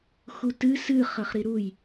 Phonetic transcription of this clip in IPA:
xutɨ sɨ χɐχɾiɾuj

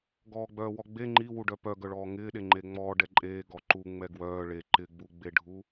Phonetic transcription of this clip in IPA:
ɡɔːɡ͡bœːwɔɡ͡be ŋ͡ǃiwuɖœ pœɡœɭɔː ŋɪːɗe ŋ͡ǃeŋ͡mɔː ɖɛǃʼeːɡɔ ǃu ŋ͡mɛɡwœː ɭe ǃɪɡ͡buɡ͡beɖʱu

